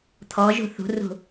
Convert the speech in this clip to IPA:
t̪ʰ ɔ ʒ ṳ θ ṳ r ṳ

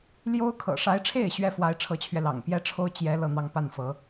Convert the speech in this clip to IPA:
l j o˥ ʊ̯ kʰ ɤ̰˨˩ ʂ a˧˥ ɪ̯ ʈ͡ʂʰ e˥˩ ɪ̯ ɕ ɥ ɛ˥ f w a˧˥ ɪ̯ ʈ͡ʂʰ ɤ˧˥ t͡ɕʰ ɥ ɛ˧ l ɑ̰˨˩ ŋ p j ɛ˥ ʈ͡ʂʰ o˥ ʊ̯ t͡ɕ j ɛ˧˥ l ɤ˥˧ n̪ ɑ˥˧ ŋ p a˥˩ n f ɤ˧˥

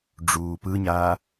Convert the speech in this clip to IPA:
ɖ͡ʐ uː p ɯ ɲ aː

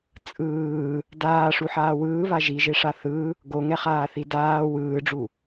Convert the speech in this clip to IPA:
t͡sʼ ɯː | d aː ʂ u ħ aː w ɯː β a ʒ i ʒ e ʂ a θ ɯ | ɡ o ŋ ɛ χ aː θ i d aː w ɯː ɖ͡ʐ u

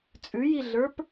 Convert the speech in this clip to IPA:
t͡sʼ ʉ j i ɮ ə˞ p

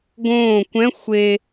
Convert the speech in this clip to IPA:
ɡ õː kʷ ɛ̃ xʷ e

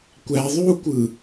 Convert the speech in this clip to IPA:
kʷ æ ðˤ u kʷ ɯ

